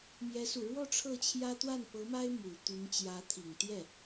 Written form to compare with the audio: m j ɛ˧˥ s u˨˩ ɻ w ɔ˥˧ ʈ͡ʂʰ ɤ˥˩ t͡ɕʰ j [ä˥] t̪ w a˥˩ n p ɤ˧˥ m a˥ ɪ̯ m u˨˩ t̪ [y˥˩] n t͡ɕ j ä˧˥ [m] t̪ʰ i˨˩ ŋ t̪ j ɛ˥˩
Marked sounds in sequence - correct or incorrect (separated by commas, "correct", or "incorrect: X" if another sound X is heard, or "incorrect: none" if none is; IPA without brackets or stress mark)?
correct, incorrect: y˧˥, incorrect: none